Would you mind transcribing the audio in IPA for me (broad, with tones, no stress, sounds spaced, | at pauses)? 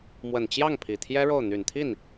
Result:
m w ə˨˩ n t͡ɕ j ɑ˥˩ ŋ pʰ i˨˩ t̪ʰ j ɛ˥ ɻ o˥˩ ʊ̯ n̪ y˨˩ n t̪ʰ i˥˩ n